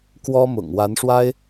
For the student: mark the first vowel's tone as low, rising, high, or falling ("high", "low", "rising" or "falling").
high